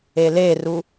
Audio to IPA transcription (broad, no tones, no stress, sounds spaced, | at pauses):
e l e r u